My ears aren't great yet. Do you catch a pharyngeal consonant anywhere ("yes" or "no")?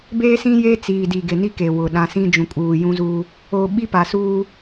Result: no